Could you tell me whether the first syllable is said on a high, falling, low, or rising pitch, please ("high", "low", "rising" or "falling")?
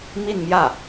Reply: falling